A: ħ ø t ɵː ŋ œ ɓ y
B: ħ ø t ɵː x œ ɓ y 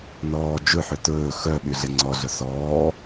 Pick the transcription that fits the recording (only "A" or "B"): B